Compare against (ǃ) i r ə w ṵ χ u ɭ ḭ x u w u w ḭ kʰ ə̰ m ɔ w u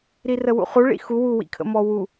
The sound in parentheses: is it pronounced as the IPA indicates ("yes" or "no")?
no